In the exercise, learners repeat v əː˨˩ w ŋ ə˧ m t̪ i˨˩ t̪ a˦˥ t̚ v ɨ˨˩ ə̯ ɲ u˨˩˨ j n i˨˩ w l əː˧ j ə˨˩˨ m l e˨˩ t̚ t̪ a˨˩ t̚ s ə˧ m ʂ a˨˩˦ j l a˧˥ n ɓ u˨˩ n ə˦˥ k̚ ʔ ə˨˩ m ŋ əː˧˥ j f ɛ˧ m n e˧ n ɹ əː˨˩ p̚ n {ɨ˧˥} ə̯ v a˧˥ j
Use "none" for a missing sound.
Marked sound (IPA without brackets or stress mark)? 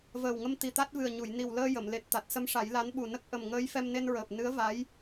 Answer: ɨ˧˥